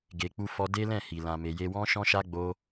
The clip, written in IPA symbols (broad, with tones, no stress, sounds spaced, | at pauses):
ɡ e˧ k͡p u˦ f ɔ˦ d e˦ l ɛ̃˦˨ h i˨ l ã˨ m e˨ j e˧ w ɔ̃˦ ʃ ɔ̃˦ ʃ a˦ ɡ͡b o˦